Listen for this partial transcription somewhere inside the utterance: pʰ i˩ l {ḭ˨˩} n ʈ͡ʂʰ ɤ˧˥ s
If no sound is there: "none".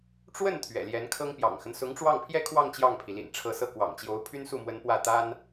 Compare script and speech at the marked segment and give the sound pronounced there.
ḭ˨˩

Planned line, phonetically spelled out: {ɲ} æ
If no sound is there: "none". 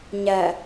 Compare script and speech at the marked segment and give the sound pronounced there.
ɲ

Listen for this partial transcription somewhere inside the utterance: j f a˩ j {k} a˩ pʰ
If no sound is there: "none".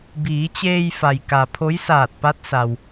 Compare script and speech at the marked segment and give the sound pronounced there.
k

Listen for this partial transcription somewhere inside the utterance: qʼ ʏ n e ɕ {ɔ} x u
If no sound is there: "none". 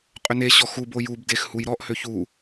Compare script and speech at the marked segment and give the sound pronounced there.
ɔ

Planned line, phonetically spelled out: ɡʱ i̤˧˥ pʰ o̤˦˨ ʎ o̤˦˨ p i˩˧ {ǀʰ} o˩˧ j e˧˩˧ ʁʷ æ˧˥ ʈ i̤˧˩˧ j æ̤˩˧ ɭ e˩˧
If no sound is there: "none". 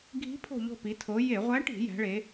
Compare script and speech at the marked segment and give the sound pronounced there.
tʰ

